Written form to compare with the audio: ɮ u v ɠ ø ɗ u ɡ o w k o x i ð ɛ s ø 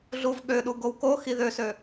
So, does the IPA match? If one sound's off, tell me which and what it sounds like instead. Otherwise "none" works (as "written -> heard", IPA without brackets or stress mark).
ɛ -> ø